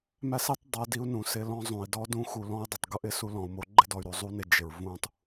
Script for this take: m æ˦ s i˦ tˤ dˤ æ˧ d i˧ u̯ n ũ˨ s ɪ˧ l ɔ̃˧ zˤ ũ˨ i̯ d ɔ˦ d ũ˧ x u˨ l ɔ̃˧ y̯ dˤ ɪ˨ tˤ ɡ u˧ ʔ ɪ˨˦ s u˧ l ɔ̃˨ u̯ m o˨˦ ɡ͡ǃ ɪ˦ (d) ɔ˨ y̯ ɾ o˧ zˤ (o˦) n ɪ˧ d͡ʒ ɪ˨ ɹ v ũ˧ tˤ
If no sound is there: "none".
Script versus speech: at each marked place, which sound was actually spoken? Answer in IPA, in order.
d, u˦

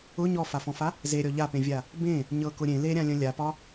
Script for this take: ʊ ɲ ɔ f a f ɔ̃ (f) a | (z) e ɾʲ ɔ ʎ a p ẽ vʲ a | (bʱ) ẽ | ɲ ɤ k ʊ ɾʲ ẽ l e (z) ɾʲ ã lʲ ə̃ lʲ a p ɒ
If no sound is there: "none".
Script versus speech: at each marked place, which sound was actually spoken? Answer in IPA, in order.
f, z, b, none

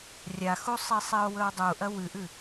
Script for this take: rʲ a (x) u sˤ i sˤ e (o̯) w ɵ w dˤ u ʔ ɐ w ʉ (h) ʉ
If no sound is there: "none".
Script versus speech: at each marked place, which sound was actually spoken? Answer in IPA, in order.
x, o̯, ʔ

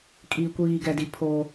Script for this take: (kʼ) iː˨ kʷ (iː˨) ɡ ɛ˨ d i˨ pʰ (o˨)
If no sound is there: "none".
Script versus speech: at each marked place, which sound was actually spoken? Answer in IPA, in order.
kʼ, iː˨, o˦

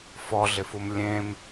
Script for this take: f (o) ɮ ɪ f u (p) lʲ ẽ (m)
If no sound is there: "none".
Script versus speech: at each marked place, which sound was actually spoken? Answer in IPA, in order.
ɔ, m, m

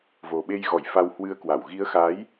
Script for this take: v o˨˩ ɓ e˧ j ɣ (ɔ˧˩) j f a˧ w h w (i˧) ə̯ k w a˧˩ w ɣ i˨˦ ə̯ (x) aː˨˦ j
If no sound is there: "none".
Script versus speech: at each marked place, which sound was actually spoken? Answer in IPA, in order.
ɔ˧˩, ɨ˧, x

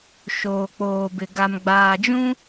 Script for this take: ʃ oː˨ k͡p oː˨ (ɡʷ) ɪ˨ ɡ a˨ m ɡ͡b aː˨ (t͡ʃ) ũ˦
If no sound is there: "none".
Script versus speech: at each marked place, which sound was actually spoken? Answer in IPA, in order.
b, d͡ʒ

